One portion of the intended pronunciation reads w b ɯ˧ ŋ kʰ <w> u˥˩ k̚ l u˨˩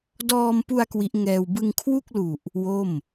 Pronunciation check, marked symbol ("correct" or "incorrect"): correct